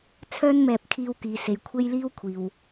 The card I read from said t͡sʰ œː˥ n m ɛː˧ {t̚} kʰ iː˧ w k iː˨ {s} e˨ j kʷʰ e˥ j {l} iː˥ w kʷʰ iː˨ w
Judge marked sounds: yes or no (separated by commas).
no, yes, yes